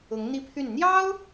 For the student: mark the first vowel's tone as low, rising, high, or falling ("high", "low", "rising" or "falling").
rising